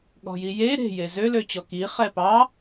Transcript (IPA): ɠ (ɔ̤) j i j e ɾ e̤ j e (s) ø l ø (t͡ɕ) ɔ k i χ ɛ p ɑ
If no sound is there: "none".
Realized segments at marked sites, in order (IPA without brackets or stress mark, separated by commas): ɔ̤, z, t͡ɕ